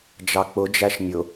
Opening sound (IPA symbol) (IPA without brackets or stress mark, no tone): d͡ʒ